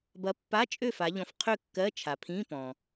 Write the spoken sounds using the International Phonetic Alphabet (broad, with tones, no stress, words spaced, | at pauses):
bɐ˨˥pːa˧˥˧t͡ʃʼø˥˨ fa˩˧ʎɔ̃˩˧fqʰø˥˨ kːɜ˧˥˧t͡ʃʰa˩pʰĩ˧˥˧ pɔ̃˩